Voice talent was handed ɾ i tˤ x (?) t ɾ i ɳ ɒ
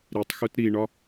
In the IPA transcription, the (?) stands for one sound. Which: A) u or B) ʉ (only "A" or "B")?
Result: A